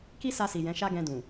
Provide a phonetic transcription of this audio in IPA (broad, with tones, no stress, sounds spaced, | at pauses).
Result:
k i˦ s a˧ s i˨ j ɛ̃˨˦ ʃ a˦ ɡ ɛ̃˧ d ũ˨